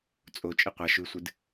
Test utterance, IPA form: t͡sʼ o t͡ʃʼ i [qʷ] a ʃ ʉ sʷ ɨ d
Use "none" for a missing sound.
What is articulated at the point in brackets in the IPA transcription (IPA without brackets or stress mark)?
qʷ